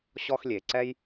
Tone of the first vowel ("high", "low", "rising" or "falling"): high